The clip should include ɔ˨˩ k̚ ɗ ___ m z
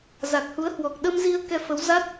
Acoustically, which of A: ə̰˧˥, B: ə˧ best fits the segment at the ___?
B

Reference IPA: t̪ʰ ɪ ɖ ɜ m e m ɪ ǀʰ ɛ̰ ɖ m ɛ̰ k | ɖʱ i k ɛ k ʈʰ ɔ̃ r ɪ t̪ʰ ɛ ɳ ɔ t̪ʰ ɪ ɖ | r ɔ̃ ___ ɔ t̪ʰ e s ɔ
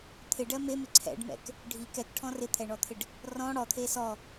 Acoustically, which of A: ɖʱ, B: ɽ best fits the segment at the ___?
B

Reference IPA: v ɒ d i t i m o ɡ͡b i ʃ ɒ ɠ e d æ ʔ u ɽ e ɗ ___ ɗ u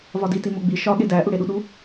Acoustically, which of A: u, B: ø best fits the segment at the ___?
A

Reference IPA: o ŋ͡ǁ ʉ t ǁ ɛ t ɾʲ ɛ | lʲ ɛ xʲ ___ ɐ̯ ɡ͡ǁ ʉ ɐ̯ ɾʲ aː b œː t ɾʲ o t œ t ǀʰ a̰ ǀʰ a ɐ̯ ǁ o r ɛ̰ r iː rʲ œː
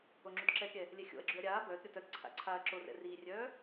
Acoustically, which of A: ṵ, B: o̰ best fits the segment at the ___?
B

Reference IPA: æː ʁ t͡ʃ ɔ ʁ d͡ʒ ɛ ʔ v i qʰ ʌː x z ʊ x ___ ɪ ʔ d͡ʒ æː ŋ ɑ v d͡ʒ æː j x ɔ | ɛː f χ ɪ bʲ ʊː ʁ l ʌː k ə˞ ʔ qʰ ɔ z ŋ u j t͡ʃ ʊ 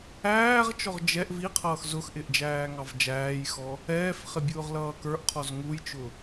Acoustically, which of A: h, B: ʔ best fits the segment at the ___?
B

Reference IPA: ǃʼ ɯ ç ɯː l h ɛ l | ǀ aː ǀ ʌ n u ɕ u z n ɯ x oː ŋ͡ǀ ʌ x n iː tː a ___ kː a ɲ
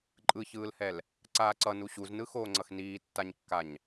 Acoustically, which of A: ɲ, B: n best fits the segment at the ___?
A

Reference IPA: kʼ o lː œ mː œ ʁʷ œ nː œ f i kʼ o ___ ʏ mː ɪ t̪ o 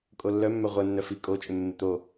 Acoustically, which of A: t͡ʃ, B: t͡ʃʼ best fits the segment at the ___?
B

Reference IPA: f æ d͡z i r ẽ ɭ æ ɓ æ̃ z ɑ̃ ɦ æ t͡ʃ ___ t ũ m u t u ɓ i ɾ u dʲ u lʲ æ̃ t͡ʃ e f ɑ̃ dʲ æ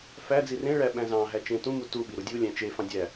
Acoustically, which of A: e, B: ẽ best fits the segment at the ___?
B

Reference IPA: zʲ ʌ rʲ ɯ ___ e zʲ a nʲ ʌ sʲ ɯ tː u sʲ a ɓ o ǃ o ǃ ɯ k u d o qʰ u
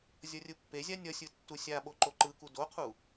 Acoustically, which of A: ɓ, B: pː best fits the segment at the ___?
B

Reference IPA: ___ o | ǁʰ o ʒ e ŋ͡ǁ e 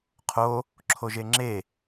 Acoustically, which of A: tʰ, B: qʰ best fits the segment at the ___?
B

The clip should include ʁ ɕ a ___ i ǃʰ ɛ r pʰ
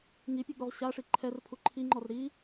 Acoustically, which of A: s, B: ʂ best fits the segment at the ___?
B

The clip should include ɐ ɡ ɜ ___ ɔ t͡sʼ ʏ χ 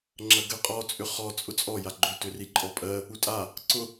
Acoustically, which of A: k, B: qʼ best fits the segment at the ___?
B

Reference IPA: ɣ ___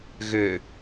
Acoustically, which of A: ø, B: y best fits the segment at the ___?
A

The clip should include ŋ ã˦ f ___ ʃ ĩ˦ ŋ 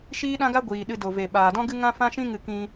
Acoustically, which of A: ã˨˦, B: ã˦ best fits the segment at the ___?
B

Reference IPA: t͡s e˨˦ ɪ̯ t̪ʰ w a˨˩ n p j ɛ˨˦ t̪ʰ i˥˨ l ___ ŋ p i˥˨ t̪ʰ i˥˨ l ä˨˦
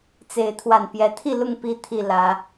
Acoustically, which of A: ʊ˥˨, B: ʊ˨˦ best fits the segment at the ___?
A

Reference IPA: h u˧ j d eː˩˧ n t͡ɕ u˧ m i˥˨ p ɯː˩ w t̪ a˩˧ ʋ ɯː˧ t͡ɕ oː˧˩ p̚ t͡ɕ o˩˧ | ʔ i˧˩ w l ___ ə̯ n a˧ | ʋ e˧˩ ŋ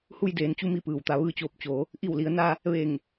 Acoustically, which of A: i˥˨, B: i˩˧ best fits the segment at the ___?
B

